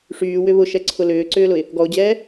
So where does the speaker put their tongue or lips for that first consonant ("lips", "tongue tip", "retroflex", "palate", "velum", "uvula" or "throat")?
retroflex